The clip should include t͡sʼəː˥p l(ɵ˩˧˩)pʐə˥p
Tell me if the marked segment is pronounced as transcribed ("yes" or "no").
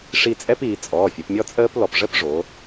no